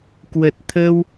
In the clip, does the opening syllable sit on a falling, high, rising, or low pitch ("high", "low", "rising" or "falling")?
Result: low